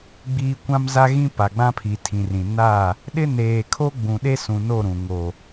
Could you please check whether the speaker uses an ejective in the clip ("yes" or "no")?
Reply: no